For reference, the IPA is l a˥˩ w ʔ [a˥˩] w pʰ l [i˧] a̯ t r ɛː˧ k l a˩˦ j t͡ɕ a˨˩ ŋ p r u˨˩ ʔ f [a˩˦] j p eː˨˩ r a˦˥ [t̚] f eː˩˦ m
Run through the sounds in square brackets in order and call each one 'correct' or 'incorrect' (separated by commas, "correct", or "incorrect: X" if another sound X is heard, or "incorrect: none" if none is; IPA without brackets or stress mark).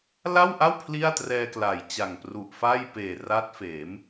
correct, incorrect: i˥˩, incorrect: a˥˩, correct